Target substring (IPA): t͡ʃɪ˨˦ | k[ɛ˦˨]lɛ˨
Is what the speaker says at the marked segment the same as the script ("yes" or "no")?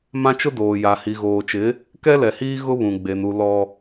no